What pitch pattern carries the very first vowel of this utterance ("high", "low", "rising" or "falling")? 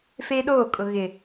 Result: high